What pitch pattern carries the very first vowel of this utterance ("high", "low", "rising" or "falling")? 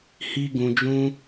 high